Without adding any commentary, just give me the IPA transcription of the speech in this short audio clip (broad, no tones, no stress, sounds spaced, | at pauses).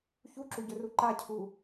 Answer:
ç u ǁ u ɟ ɵ r u ǃ a cʰ u